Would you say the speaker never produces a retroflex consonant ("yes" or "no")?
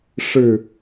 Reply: no